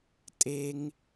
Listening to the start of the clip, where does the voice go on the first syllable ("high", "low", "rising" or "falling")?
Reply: high